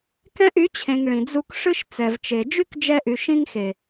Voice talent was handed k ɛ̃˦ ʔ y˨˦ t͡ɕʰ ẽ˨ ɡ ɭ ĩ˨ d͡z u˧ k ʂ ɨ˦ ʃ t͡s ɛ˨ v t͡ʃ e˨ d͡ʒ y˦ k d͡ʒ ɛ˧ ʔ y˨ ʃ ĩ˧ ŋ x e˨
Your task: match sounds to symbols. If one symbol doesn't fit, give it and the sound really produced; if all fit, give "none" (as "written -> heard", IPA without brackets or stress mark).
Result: ɡ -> ŋ